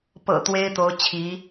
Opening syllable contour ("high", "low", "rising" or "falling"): low